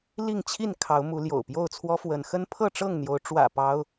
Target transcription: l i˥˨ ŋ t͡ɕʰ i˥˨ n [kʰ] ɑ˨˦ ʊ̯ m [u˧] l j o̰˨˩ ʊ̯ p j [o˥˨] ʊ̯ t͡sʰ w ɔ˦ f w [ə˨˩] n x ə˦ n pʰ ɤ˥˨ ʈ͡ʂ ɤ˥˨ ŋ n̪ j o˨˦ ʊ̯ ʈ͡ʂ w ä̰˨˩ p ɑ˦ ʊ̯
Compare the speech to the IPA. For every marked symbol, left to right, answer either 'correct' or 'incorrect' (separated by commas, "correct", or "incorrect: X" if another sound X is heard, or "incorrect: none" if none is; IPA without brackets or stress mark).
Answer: correct, incorrect: u˨˦, correct, incorrect: ə˨˦